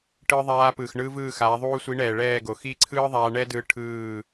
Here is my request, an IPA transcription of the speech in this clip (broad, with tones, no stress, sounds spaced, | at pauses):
ʈ ɯː˧ ðˤ aː˧ p ɯː˨ x ɳ ɯː˧ v ɯː˦˨ x aː˨˦ ðˤ uː˦ sʷ i˨˦ ɳ ɛː˨ ɭ ɛː˦˨ ɡ o˨ x i˦˨ ǀʰ ɯː˦ ðˤ aː˧ ɳ ɛ˦ d ɯː˧ ʈʰ ɯː˦˨